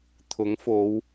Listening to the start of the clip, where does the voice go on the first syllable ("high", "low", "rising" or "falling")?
rising